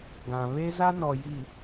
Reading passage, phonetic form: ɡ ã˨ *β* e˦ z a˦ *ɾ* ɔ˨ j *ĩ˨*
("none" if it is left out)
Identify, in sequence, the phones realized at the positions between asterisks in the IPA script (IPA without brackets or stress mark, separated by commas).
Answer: β, n, i˨